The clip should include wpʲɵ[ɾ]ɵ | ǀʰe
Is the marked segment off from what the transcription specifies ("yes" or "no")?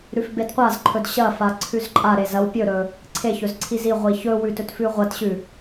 no